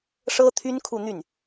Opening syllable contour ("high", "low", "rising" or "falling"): high